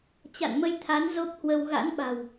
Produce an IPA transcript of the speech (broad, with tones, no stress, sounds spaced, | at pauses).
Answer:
t͡ɕ a̰˧˨ n m ə˧ j t̪ʰ a˨˦ n z o˦˥ p̚ h w ə˧ w ɣ a̰˧˥ n ɓ a̤˨˩ w